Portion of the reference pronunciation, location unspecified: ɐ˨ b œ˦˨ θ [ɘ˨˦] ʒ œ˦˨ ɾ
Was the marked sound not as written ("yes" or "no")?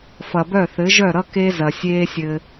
no